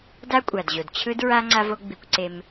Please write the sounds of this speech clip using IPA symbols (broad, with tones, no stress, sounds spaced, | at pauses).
d a˦ kʷʼ a˨ d ʑ o˨ d t͡ɕʰ ɯ˦ d ɹ a˦ ŋ͡ǀ a˦ v o˦ ɡ͡b i˧ kʷ ǀ e˧ m